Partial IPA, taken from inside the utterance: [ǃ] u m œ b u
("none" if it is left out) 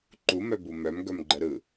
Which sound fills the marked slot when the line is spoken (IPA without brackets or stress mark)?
ǃ